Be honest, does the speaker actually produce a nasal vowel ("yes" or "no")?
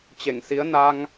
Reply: no